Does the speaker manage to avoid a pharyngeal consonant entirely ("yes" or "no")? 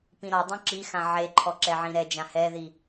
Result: no